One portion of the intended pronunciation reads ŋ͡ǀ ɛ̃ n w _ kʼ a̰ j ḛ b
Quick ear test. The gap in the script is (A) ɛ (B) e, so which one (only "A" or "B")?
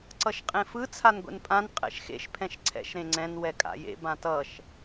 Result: A